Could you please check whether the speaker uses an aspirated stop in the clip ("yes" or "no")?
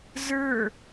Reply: no